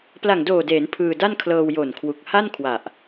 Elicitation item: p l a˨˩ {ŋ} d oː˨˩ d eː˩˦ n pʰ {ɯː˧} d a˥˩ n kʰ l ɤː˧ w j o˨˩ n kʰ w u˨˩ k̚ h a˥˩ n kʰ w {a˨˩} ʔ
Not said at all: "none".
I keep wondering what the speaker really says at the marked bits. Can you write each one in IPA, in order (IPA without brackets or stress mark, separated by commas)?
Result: ŋ, ɯː˧, a˨˩